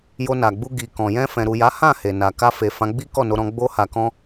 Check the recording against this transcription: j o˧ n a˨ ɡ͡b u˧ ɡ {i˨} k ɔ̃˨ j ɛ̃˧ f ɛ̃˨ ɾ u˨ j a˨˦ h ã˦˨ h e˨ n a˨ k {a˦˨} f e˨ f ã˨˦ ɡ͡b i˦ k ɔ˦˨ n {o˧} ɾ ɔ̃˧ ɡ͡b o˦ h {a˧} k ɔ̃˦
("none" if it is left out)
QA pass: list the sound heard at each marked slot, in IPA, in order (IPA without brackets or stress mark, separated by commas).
i˨, a˧, o˧, a˧